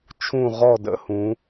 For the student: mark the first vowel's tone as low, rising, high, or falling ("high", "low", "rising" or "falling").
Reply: falling